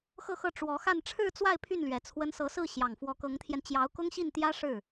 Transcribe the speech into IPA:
x ɤ˥˧ x ɤ˥˩ ʈ͡ʂ w ɔ˧˥ x a˥˧ n ʈ͡ʂʰ ɻ̩˥˧ t͡s w a˥˧ ɪ̯ pʰ y˥˩ n l ɥ ɛ˨˩ t͡sʰ w ə˧˥ n s ɤ˧˥ s ɹ̩˥˩ ɕ j ɑ˨˩ ŋ f w ɔ˧˥ k ɤ˧˥ ŋ t̪ʰ j ɛ˧ n t͡ɕ j ɑ˧˥ ʊ̯ k ʊ˥ ŋ ɕ i˥˩ n t̪ j ä˥ ʂ ɻ̩˥˩

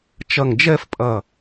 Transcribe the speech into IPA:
t͡ʃ ɐ˧˩ ŋ d͡ʒ ɛ˥˧ f pʼ ɐ˧˩

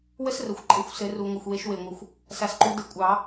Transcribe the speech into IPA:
w ə˥ s r ə˨˩ xʷ ǃʼ ɘ˩˥ xʷ s ɘ˨˩˦ r u˨˩ ŋʷ ɘ˨˩ xʷ w e˨˩˦ ʃ w e˨˩ ŋʷ ɘ˨˩ xʷ | s a˨˩ s ǃ u˨˩˦ d ɘ˨˩˦ kʷʼ ɑ˨˩˦

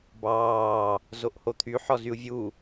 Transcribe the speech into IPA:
b ɑː | z o ʔ h o t̪ʰ y ħ ɔ z y u̯ vʲ u

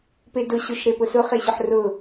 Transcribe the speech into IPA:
p e d ʊ ɕ o ʃ ɾ e p ʊ s ʊ χ e ɕ ʊ ħ r ʊ

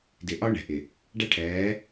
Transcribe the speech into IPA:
d ɪ˨ ʔ ɒ˦ ɳ ɛ̤˨ ʔ ɪ˨ | ɖ æ˦ ʈʰ ɛː˨˦

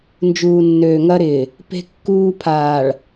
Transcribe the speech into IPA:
n d͡ʒ uː˨ nː øː˨ ŋ ɐ˦ ɾ ɪː˨ | p e̤˦ kː uː˦ pʰ aː˨ ɭ

